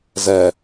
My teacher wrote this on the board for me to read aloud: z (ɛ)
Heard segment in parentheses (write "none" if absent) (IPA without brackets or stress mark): ɛ